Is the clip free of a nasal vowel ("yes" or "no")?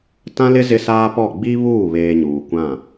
no